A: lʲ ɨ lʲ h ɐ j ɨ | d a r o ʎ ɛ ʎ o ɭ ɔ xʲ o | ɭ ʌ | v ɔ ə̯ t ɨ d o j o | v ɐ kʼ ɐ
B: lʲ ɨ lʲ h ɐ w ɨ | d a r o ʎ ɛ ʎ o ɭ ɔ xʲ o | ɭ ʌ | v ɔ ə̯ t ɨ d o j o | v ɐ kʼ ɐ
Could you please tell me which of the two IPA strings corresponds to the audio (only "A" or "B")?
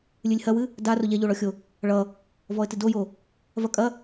B